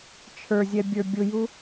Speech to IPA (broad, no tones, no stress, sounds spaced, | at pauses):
t͡ʃʰ ə˞ zʲ ɛ bʲ ə˞ bʲ ʊ j u